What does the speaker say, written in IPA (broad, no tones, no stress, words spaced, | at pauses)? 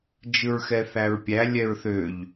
d͡ʒɯɹxɛθæɹpʲæ lʲɛɹθøʎ